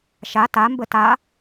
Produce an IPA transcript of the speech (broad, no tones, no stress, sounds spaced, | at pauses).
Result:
ʃ a t a m b ə t a